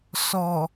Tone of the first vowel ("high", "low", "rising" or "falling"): low